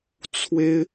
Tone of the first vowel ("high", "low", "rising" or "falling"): high